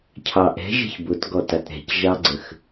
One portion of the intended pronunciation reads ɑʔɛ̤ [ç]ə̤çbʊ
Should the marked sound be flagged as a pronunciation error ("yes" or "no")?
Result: yes